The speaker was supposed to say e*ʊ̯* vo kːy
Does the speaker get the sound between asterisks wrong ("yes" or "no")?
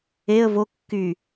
yes